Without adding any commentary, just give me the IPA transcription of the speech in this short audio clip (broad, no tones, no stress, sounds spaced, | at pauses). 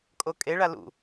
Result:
kʼ o kʼ e ɭ a l ṵ